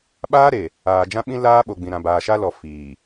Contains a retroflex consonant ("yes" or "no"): no